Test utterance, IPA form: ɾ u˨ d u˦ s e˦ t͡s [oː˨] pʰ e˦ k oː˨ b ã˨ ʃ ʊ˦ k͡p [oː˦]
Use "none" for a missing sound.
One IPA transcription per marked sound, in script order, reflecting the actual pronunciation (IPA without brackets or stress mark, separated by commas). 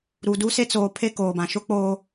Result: oː˨, oː˦